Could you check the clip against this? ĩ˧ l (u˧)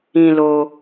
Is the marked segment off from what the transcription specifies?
yes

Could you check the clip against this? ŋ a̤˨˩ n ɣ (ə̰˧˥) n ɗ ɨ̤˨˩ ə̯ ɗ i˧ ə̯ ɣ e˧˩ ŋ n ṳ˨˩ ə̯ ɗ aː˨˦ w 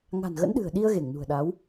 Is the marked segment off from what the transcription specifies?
no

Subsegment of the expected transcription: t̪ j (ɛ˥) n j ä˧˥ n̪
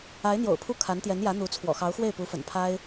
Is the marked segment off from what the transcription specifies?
yes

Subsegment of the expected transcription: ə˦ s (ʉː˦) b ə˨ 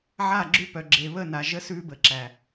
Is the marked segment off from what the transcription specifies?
no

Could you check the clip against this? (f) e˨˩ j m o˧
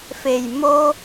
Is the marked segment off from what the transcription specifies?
no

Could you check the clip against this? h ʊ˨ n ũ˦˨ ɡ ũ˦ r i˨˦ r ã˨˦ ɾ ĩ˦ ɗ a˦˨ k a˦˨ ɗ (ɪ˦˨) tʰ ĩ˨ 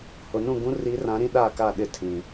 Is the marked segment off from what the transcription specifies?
no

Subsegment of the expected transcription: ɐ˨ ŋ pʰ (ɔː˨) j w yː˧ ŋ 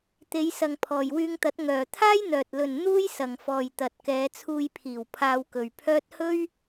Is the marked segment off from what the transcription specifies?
no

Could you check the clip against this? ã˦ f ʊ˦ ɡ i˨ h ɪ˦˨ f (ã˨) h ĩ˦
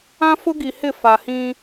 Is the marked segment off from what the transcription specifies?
yes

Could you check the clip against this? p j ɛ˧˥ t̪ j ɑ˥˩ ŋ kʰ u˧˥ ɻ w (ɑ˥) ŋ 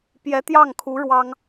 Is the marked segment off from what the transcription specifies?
no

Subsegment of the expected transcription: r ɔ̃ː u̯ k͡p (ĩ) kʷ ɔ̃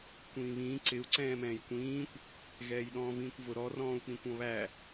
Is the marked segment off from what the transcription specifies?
no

